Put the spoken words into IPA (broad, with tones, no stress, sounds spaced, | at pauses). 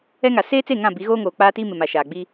ɛ˦ ŋ a˨ s eː˦ t͡s e˦˨ ŋ ã˦˨ b i˨˦ ɣ oː˦ ŋ oː˨ k͡p aː˦ t iː˦ m ɪ˨ m a˨ ʃ aː˨ ɡ͡b i˦